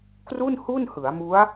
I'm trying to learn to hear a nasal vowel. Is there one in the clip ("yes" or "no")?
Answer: no